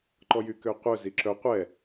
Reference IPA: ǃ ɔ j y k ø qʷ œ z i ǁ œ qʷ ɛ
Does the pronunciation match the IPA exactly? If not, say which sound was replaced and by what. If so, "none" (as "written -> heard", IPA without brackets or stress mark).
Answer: none